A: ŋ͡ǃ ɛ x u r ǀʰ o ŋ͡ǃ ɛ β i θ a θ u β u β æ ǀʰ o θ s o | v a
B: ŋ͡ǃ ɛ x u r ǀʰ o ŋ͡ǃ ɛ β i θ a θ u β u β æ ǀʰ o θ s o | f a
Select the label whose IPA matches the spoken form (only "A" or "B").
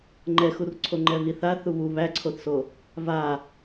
A